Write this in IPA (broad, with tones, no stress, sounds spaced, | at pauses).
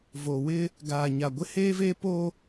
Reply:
v o˨ w ɪ˦ | ɡ aː˨ ɲ a˨ ɡʷ ɪ˦ h eː˦ v eː˦ p oː˦